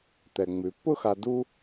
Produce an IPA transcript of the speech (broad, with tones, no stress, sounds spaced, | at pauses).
t̪ ɛ˩ ŋ͡m ʉ˩ pː ʊ˥ x a˧ d u˥